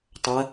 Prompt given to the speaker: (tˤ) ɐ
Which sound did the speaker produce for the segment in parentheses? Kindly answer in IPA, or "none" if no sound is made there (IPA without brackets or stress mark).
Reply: tˤ